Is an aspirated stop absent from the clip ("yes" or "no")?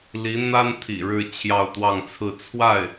no